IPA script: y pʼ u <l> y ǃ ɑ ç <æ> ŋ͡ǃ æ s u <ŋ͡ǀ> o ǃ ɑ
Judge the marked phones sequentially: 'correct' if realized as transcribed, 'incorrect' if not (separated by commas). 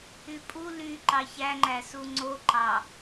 correct, correct, correct